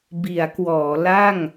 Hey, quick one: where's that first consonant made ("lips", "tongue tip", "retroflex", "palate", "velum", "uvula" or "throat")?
lips